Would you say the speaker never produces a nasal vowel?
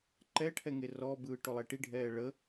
yes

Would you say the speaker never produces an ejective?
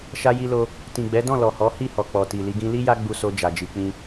yes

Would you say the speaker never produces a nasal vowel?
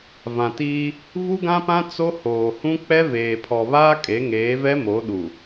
no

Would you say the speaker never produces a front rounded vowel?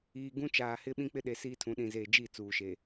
yes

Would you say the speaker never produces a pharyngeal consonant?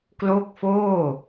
yes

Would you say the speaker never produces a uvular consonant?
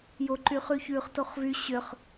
no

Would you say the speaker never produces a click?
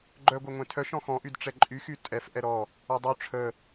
no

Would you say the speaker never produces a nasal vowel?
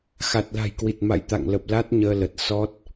yes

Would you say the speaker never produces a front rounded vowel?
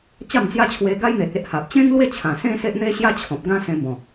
yes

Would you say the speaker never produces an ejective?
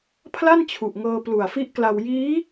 yes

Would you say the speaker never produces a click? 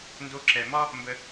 no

